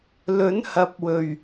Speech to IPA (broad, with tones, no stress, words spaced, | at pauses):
lɵ˨˥nhɐ˨˥p̚wɵ˨˩ɥ